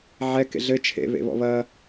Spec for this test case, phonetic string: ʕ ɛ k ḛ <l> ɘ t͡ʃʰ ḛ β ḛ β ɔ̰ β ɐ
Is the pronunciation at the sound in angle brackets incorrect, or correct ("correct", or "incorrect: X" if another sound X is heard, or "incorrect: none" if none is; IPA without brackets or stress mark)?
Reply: incorrect: ɮ